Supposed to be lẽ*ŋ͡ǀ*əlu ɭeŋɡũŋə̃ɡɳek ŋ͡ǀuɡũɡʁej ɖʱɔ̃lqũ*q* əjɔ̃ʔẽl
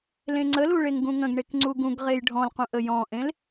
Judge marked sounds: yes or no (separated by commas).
yes, no